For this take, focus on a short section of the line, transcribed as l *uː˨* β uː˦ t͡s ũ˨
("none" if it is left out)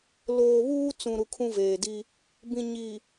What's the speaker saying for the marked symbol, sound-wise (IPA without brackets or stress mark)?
oː˨